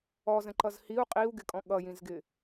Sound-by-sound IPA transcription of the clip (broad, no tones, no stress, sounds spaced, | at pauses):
ɔ z ə̃ ǃ ʌ z h i u̯ qʼ i u̯ ɡ ɪ kʼ ɔ̃ ɠ ʌ j ĩ z ɡ ɪ